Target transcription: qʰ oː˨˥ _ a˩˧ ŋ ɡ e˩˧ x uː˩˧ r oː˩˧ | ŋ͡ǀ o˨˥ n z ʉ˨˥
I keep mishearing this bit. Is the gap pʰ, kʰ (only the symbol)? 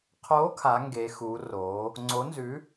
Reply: kʰ